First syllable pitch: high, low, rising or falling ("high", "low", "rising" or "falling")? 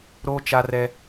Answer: high